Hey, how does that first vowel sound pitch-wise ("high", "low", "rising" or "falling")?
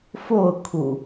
falling